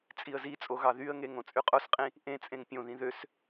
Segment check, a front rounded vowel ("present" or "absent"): present